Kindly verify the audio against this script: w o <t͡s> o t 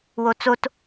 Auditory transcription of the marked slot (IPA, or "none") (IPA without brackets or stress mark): t͡s